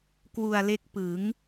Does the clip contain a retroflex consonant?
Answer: no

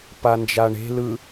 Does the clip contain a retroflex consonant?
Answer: yes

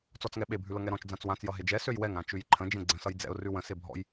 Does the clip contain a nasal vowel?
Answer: yes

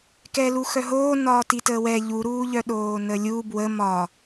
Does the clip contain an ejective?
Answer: no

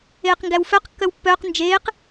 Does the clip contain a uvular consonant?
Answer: yes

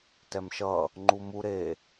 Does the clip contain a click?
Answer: yes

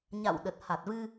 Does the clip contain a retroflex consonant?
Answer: no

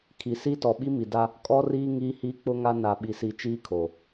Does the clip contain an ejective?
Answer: yes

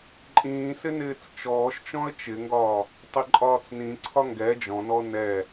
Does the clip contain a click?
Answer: yes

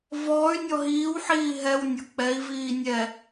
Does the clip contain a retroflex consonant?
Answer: no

